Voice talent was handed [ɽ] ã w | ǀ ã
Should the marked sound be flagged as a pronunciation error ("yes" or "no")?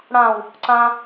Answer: no